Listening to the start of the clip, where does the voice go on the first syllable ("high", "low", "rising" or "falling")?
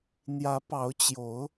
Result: rising